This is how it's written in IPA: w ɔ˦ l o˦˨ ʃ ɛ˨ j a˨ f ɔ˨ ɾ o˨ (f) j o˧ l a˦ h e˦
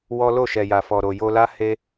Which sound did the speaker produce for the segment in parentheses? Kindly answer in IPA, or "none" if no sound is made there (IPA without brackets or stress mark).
none